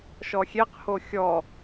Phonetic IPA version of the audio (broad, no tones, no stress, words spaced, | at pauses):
ʃɔxʲeqho xʲɔ